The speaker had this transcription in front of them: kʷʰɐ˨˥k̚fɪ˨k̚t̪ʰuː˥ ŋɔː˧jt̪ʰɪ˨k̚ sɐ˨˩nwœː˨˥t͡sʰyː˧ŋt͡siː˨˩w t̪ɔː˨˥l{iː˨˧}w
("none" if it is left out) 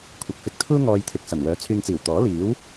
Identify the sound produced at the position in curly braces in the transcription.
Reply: iː˨˥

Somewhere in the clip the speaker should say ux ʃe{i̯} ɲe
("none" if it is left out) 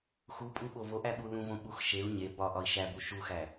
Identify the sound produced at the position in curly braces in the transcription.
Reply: u̯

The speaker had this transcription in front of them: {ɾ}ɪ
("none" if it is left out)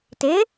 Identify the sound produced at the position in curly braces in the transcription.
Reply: t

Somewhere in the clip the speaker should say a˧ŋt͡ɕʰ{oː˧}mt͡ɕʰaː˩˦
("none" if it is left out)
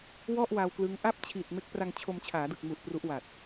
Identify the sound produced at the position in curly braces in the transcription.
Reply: o˧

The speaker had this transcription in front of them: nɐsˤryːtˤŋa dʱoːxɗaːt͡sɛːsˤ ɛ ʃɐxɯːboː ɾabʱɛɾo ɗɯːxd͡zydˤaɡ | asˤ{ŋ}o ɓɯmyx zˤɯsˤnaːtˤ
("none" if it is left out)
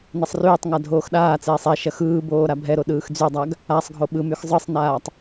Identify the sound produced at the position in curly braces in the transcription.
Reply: ɡʱ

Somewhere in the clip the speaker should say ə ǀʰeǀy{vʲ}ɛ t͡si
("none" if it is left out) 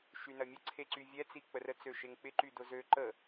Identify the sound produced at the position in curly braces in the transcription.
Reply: vʲ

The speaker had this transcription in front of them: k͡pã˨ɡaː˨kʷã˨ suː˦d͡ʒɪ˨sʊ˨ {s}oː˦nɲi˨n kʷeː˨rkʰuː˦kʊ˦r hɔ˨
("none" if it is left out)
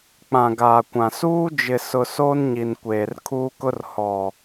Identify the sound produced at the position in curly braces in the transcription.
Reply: s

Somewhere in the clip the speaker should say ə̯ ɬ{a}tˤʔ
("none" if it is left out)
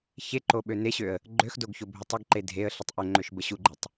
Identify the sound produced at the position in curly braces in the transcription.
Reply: ə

